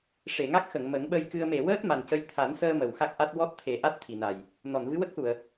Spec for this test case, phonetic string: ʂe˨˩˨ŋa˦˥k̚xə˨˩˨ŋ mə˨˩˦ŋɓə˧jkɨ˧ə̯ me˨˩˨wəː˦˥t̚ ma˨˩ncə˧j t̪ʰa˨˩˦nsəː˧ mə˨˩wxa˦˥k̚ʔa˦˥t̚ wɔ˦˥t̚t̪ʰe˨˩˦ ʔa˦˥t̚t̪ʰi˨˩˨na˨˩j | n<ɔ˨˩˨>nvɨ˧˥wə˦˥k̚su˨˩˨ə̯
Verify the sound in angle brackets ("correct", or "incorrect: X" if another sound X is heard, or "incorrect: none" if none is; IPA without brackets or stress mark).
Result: correct